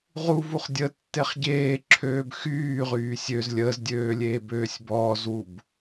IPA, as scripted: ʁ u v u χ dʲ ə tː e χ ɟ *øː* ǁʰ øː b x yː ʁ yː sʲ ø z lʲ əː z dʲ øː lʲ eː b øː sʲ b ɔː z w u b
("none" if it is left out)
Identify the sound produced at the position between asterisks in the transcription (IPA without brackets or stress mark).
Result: eː